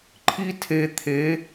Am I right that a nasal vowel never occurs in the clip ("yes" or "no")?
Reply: yes